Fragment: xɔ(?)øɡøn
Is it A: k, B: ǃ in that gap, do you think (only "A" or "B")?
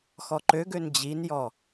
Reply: B